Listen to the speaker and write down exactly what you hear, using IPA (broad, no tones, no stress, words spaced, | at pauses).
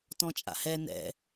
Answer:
tɔ̃t͡ʃʼa̰hɛ nɛ̰